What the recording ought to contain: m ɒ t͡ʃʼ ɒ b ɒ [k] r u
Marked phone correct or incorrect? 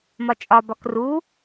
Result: correct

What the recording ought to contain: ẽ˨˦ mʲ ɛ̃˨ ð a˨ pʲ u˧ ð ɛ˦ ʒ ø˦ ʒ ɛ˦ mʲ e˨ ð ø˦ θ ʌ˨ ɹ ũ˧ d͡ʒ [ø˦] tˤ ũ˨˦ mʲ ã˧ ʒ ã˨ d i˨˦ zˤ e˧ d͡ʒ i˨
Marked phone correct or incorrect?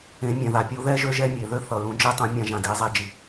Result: incorrect: e˦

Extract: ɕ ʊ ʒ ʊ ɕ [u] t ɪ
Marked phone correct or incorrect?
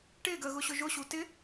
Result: correct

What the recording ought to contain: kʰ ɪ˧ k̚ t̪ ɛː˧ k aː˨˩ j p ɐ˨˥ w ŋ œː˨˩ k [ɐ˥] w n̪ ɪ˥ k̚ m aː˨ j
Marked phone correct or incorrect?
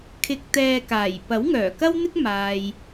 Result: correct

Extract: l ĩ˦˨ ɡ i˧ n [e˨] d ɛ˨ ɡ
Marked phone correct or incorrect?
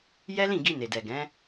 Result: correct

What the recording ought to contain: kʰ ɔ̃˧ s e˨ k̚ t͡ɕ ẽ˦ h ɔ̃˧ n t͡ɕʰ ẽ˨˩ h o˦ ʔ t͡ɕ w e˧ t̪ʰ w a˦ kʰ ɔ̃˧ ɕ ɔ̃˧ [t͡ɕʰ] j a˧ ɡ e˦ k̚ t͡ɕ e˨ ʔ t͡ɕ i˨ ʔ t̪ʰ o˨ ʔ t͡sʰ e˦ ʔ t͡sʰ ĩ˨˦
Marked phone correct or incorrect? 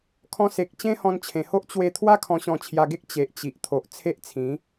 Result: correct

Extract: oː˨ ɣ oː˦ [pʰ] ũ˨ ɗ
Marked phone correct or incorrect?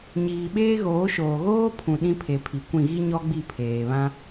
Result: correct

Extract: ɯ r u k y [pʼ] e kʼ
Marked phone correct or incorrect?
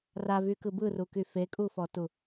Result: incorrect: f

